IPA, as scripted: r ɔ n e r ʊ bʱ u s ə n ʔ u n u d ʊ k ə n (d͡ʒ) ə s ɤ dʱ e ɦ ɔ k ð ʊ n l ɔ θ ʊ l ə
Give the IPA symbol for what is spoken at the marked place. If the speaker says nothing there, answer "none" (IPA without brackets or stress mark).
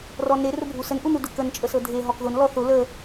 t͡ʃʼ